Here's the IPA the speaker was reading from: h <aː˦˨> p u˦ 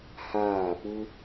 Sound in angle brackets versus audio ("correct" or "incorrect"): correct